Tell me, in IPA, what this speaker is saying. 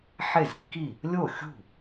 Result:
ħ e˥˩ z kː i˥˩ | lʲ o˥˩ xʲ ṳ˥˩

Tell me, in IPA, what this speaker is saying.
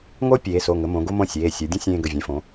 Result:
ŋ o˥ pʲ eː˩˧ s o˩˧˩ ŋ ə˩˧ m õ˩˧ ɡ o˥ m õ˥˩ sʲ eː˩˧˩ sʲ ə˞˩˧ dʲ ə̃˥ sʲ ẽː˧ ɡ ə˩˧˩ vʲ ẽ˩˧ f õ˩˧

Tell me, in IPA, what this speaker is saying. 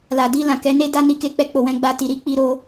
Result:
l a˨ d i˧ l ã˨ k ɛ˧ n e˦ d a˦ n i˧ k e˧ k͡p ɛ˧ k͡p o˨ w ɛ̃˧ ɡ͡b a˧ t i˨ ɾ i˧ k͡p i˧ ɾ o˦

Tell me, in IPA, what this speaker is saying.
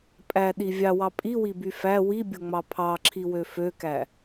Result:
pʼ æ ɗ i vʲ ɑ w ɑ pʼ i w i b y f æ w i bʲ o ŋ͡m ɑ pʰ ɑ ǁʰ i w ø f ø k æ

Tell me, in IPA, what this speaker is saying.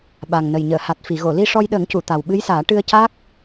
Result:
ɓ a˨˩ ŋ n ə˨˩ j ɲ əː˨˩˨ h a˨˩ t̚ f i˨˩˨ ɣ o˨˩˨ l i˧ ʂ ɔ˧ j ɗ əː˨˩˦ ŋ c u˨˩˨ t̪ a˨˩ w ɓ ɨ˧˥ j s aː˨˩˦ ʈ ɨ˧ ə̯ c a˦˥ k̚

